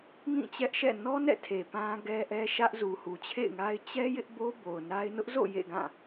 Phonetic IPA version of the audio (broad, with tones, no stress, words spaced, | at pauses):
ŋĩ˦˨t͡ɕɛ˦ʔʃɛ̰˦˨ nɔ˦nɛ̰˦˨ tʰe˨pã˦ɡɛ˦ ʔɛ˦ʃä˦ʔ zu˨hu˨t͡ɕʰḛ˦˨ɪ̯ŋa˦ɪ̯ t͡ɕɛ˦ jɪ˦ʔbo˦ bo˨ʊ̯na˦ɪ̯ nʊ˦ʔzo̰˦˨ jḛ˦˨ɡã˦˨